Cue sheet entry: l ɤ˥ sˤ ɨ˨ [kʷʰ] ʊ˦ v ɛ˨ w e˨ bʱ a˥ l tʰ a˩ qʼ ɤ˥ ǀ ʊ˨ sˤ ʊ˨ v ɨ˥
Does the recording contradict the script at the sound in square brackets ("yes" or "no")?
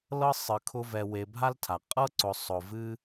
yes